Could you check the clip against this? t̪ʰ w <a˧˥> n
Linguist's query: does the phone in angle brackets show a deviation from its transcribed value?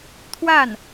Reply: yes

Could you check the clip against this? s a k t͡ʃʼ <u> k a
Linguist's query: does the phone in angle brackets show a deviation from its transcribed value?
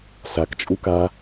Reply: no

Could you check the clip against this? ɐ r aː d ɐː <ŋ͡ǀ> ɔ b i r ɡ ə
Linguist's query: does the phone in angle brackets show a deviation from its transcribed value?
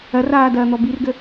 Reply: yes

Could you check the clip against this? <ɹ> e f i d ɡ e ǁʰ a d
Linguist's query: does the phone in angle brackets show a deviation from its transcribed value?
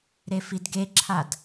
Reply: yes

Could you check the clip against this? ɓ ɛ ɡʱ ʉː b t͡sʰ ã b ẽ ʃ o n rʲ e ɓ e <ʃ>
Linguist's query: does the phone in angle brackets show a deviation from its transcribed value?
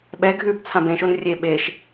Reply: no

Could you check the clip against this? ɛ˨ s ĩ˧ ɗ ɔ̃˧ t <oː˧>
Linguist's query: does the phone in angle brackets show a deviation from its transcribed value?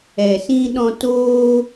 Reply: no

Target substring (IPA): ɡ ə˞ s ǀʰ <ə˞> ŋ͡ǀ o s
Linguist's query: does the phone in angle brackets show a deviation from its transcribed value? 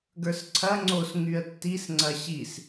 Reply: yes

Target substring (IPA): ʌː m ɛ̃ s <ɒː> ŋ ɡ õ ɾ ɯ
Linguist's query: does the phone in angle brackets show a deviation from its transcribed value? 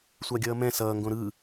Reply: yes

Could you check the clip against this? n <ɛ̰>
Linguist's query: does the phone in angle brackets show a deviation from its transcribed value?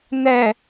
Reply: yes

